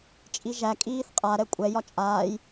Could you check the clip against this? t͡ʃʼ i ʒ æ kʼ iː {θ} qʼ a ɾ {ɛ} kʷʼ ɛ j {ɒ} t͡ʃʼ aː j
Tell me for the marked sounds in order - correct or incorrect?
correct, correct, correct

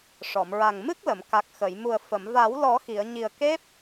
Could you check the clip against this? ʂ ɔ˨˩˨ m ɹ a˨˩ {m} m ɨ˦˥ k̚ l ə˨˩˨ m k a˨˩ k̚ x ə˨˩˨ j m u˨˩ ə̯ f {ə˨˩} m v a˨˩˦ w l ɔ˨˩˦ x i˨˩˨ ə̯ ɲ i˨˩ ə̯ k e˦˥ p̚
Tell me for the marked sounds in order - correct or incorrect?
incorrect: ŋ, incorrect: ə˨˩˨

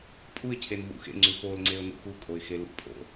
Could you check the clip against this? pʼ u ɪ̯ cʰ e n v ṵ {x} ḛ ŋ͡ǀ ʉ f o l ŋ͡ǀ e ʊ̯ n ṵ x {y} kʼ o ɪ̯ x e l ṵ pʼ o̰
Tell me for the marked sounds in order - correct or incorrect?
correct, incorrect: u

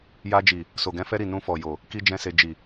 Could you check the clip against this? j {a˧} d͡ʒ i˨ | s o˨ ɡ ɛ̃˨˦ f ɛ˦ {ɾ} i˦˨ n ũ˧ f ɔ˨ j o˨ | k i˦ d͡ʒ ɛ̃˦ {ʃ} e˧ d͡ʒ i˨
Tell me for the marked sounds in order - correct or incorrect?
correct, correct, incorrect: s

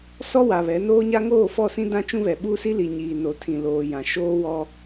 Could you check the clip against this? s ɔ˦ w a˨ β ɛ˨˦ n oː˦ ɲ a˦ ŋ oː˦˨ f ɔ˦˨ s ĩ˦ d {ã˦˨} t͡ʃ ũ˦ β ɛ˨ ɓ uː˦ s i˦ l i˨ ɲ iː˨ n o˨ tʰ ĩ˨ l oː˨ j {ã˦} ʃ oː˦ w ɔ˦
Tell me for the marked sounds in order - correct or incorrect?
incorrect: ã˦, incorrect: ã˨

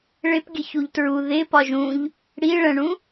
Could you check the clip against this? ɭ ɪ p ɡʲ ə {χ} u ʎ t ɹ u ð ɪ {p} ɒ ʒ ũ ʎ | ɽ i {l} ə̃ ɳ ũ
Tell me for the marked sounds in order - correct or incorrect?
incorrect: ç, correct, incorrect: ɭ

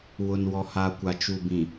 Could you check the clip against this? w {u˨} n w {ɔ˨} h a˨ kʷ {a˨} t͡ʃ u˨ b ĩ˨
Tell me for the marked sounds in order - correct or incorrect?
incorrect: ʊ˨, correct, correct

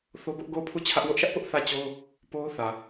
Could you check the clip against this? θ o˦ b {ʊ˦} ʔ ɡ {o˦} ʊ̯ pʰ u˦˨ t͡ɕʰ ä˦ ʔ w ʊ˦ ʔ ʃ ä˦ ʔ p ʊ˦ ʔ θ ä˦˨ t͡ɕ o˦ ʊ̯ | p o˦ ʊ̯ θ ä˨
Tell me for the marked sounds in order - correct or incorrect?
correct, incorrect: o˦˨

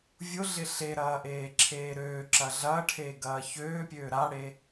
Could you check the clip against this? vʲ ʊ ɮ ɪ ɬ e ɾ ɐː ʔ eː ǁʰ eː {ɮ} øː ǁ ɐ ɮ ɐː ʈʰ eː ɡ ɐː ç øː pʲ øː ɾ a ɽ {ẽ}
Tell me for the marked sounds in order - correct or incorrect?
incorrect: ɾ, incorrect: e

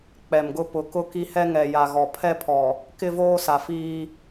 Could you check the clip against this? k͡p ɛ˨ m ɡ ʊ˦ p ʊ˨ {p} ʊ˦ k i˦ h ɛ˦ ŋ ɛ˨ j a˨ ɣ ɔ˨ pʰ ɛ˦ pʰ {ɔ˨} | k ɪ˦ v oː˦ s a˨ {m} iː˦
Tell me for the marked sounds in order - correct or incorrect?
incorrect: k, correct, incorrect: f

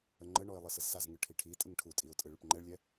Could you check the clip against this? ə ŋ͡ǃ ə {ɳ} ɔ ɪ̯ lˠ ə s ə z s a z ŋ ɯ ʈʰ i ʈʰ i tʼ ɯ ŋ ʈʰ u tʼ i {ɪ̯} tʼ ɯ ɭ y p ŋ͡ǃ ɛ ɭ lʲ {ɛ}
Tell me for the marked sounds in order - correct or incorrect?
correct, incorrect: ʊ̯, correct

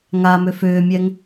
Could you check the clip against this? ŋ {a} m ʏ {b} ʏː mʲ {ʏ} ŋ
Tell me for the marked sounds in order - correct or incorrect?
correct, incorrect: f, incorrect: ɛ

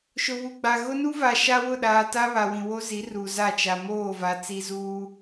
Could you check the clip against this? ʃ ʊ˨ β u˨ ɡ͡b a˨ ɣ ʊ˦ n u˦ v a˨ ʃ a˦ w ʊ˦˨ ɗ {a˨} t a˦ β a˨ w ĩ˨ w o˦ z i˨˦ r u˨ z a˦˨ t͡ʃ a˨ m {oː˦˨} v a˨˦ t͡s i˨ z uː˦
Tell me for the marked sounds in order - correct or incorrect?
incorrect: aː˨, correct

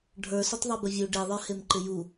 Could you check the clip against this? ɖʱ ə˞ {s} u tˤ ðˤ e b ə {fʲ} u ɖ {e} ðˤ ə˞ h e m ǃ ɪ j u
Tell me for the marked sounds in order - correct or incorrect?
correct, incorrect: vʲ, correct

